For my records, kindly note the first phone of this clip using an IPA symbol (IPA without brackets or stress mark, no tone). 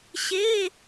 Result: ɕ